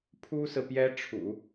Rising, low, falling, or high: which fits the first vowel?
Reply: high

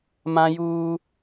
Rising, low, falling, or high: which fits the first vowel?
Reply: high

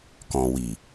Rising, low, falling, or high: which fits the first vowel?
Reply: low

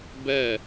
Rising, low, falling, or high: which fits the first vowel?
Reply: falling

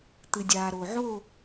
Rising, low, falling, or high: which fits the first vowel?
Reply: low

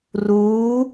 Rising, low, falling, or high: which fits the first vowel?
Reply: rising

